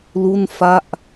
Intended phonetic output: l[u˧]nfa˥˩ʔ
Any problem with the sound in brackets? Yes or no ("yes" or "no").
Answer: yes